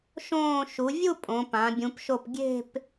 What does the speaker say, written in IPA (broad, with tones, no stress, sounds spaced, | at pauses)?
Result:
ʃ õː˧˩ ʃ u˩˧ vʲ u˥˧ pʼ õ˩˧ p ã˩˧ bʲ ũ˩˧ p ʃ o˧˩ p ɡʲ e̤˥˧ p